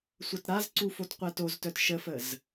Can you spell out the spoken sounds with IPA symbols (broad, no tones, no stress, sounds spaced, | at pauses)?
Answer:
sʷ ɐ t ɾ a z ǀ u f o t qʷ ɛ t o z t œ t ʃ ə f ə z